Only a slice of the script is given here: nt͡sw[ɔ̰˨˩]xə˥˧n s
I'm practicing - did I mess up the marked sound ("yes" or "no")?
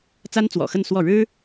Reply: no